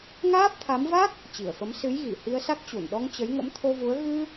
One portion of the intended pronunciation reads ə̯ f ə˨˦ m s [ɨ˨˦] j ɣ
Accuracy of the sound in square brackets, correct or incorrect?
correct